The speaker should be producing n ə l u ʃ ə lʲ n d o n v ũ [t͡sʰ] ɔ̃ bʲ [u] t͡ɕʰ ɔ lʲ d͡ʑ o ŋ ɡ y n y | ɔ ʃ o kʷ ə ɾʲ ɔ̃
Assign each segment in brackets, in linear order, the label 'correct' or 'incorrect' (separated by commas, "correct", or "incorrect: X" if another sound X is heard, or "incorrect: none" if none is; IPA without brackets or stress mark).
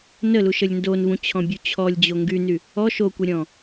incorrect: t͡ɕʰ, correct